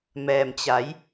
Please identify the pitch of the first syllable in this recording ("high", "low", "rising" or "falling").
low